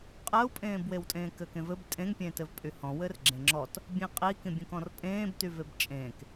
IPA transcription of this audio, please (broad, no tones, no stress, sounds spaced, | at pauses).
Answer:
qʼ ɜ u̯ pʼ ẽː b w e w tʼ ẽː k ɘ k ẽ v ɘ b tʼ ẽ ŋ pʲ ẽː t ɘ v pʼ y h ɔ̃ w ɘ r ɡ͡ǁ ẽ ŋ͡ǁ ɔ t | bʲ ẽ qʼ i k ĩ bʲ ẽ k ɔ̃ r pʼ ẽː b t y v e b t͡ʃʼ ẽː k